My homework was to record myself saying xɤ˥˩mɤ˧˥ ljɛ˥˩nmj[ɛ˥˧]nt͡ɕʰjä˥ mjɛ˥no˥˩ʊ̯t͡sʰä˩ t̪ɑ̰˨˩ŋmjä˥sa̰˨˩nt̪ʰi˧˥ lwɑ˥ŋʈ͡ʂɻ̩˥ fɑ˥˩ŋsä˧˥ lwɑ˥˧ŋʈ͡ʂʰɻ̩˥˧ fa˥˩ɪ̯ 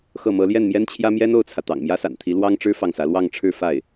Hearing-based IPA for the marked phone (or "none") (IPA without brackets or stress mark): ɛ˥